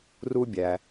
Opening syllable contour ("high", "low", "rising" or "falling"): high